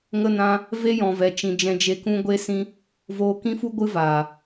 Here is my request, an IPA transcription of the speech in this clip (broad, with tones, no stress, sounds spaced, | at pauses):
ŋ ə˧ n ã˧ | v e˦ j ɔ̃˨ v ɛ˨ t͡ʃ ĩ˨ d͡ʒ ɛ̃˧ d͡ʒ e˧ k ũ˦ ɡʷ e˦ s ĩ˦ | v oː˧ k ĩ˦ f u˦ ɡʷ ɨ˦ v aː˨